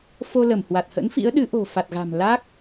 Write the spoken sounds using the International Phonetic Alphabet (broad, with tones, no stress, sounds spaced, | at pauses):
f o˧ l ə˧˩ m h w a˨˩ t̚ h ə̰˧˥ n f ḭ˧˥ ə̯ ɗ ɨ˨˦ ʔ o̤˨˩ f a˨˩ t̚ ɣ a̤˨˩ m l aː˦˥ k̚